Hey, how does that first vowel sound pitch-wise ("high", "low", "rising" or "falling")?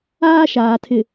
high